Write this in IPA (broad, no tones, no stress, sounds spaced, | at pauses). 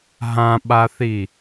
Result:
ɦ ã ɓ a θ i